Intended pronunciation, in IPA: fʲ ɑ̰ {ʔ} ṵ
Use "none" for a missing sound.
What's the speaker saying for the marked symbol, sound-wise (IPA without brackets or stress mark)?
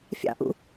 ʔ